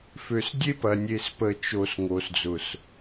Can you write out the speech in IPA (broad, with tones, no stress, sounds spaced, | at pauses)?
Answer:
f ø˨ s dʲ e˦ p ɐ˨ nʲ e˨ s p ə˨ t͡ʃ o˨ s ŋ o˨ s d͡z ʊ˨ s